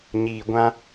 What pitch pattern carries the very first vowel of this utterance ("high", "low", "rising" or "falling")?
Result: low